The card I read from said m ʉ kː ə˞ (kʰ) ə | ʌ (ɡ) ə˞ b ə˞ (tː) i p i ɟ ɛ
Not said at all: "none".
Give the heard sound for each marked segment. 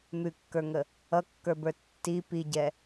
ŋ, kː, tː

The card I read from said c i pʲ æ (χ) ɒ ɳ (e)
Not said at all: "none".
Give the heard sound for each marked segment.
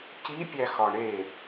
x, e

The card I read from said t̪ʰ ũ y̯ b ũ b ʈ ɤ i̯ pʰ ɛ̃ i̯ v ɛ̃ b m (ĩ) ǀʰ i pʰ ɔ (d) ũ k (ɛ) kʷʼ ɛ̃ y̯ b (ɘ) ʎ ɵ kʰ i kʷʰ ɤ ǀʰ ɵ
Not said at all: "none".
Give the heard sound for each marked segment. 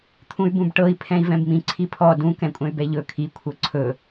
ĩ, d, ɛ̃, ɛ

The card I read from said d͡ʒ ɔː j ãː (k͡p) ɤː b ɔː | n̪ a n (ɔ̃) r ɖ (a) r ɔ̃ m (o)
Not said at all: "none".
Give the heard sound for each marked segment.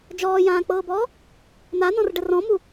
k͡p, ɔ̃, ə, u

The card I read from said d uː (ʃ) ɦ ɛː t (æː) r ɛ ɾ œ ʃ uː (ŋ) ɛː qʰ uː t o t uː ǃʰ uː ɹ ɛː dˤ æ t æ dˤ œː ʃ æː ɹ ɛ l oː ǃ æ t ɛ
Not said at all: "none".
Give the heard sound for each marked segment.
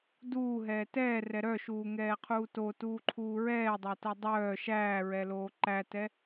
none, ɛː, ŋ

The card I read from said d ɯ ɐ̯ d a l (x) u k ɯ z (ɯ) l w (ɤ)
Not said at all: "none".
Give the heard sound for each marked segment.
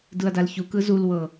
ç, u, ɤ

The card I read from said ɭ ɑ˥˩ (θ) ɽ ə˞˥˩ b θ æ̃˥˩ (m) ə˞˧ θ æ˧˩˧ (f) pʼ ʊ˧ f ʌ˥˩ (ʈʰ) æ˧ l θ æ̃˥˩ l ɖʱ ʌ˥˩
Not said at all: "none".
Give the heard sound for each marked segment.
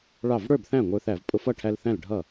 v, ŋʷ, v, ʈʰ

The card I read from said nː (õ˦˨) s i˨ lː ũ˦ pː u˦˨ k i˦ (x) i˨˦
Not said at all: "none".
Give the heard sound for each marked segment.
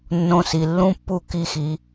õ˧, x

